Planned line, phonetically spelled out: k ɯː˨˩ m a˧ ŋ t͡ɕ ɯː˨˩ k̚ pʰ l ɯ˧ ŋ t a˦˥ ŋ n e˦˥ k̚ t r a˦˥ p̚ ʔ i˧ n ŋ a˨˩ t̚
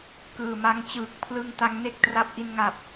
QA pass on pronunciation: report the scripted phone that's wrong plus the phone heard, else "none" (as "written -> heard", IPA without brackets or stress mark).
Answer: t̚ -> p̚